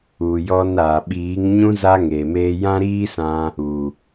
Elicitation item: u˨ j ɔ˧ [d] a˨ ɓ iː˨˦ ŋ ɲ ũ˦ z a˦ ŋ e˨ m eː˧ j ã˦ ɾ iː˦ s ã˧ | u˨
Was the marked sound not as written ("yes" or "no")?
yes